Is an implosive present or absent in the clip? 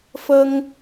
absent